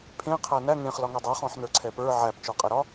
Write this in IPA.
pʰ ẽ qʰ æ n æ ŋ ẽ χ l ɒ ŋ ɛ dˤ e χ ɔ̃ ħ n ə˞ ǀʰ ɛ p ə˞ ʕ æ p t͡ʃ ɔ qʼ ɛ ɾ ɒ

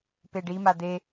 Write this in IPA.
p e ɖ i m a d̪ e

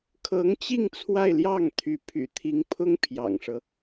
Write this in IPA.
kʰ ɤ˧˥ ŋ t͡ɕ i˥˧ ŋ t͡sʰ w a˥˧ ɪ̯ l j ɑ˥˩ ŋ t̪ʰ y˧˥ pʰ y̰˨˩ t̪ʰ i˧˥ ŋ pʰ ʊ˥ ŋ pʰ j ɑ̰˨˩ ŋ ʂ ɤ˦

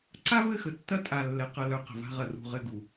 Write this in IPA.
ǀ a˦ v ɘ˦˨ x ə˨ tː ɐ˦ tʼ a˨ lː ɛ˨ q ɐ˨ l œ˨ q ə̤˨ v a̤˦ ʁ ɐ˨ r ṳ˦˨ ʁ ɘ˦˨ ɡ u˨

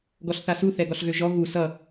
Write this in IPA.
ɡ ɔ ɬ θ a s u θ ɛ ɡ ɔ ɬ ɣ ø ʒ ɔ ɣ u s ʌ

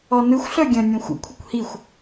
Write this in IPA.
ɔ n ɯ xʷ ɬ œ ɡʲ ə̃ nʲ ũ xʷ ə̰ kʷʰ ə kʷ h i xʷ

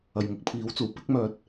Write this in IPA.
ɐ˨˩ j ŋ ʊ˨˥ k̚ pʰ iː˨˥ w t͡s uː˨˩ p ɪ˨˥ k̚ m œː˨ t̚

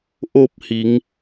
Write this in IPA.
ʔ o˥˨ p̚ h i˩˧ ŋ

